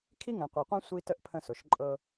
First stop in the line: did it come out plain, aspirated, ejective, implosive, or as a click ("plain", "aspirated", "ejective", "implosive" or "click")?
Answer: aspirated